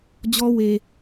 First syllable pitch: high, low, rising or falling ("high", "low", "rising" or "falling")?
high